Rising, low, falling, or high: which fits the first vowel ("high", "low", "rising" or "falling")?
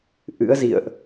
rising